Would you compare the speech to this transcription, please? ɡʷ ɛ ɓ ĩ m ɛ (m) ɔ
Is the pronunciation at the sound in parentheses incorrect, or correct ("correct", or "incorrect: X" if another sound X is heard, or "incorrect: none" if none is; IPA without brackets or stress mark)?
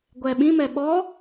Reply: incorrect: ɓ